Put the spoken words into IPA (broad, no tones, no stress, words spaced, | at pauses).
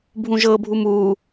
bʱũʒɤbʱum u